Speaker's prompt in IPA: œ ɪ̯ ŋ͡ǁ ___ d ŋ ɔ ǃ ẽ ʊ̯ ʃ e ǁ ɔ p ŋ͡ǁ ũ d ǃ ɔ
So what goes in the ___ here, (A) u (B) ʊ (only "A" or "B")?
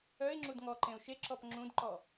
A